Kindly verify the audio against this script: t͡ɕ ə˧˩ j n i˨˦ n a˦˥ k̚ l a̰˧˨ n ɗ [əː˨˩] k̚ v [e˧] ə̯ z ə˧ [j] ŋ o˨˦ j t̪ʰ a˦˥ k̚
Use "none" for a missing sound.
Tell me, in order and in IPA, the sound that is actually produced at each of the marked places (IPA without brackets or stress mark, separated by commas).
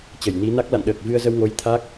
əː˨˩, ɨ˧, w